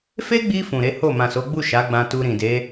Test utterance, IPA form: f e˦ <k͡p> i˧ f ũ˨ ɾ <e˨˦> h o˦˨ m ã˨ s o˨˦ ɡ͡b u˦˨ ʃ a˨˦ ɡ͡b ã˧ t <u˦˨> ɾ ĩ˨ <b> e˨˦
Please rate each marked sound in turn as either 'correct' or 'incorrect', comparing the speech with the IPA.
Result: incorrect: ɡ͡b, correct, incorrect: u˧, incorrect: d

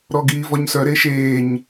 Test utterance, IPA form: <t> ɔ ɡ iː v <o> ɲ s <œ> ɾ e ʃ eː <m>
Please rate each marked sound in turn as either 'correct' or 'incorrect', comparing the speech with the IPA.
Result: incorrect: ɾ, incorrect: ɔ, correct, incorrect: ɲ

